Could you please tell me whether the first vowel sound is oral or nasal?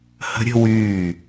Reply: oral